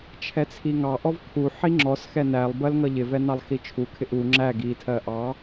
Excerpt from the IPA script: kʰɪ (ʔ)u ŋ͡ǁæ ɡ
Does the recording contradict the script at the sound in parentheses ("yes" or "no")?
no